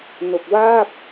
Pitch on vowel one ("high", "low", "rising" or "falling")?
low